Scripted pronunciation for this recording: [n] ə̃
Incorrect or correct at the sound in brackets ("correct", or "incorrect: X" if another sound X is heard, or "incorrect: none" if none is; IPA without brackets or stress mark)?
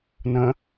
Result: correct